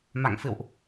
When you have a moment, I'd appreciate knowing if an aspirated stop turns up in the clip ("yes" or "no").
no